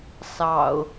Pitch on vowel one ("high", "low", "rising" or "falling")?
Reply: low